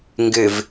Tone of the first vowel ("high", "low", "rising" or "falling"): low